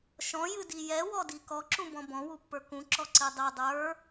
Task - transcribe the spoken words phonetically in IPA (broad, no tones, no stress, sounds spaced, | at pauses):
ʃ ɔ̃ j ɨ d i j ɛ w ɔ d i k ɔ ǁ ũ b ɔ̃ b ɔ̃ w u pː ə˞ k ũ ǁ ɔ ǀ i dˤ i dˤ ə˞